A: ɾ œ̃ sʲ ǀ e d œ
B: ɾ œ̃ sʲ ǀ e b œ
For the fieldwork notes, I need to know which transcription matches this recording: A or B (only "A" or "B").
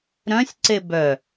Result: B